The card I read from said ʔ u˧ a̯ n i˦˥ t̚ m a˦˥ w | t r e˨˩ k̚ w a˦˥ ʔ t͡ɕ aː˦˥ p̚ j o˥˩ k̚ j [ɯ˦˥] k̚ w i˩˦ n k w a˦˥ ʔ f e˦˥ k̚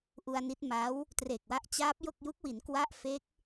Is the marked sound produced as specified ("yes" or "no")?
no